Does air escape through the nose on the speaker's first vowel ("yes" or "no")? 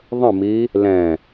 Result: yes